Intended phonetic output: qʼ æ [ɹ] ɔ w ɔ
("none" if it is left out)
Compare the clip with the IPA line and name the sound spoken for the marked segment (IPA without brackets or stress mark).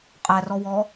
r